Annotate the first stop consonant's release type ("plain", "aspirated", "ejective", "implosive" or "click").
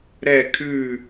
aspirated